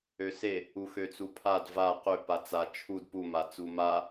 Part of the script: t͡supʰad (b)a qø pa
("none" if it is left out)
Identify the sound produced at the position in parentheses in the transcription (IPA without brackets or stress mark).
v